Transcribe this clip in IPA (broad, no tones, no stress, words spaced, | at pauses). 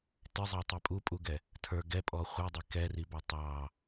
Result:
tɪzˤɑtˤi pʼupʼuɡɛ | tʰə˞ ɡɛpʼɔ χʷidˤi kɛribɑ tˤɑ